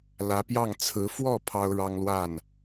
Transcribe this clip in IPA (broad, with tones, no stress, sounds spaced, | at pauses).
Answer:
l ä˧˥ p j ɑ˥˩ ŋ t͡sʰ ɹ̩˧˥ f w ɔ˥˩ pʰ ɑ˥ ʊ̯ ɻ ɑ˥ ŋ l w a˥˩ n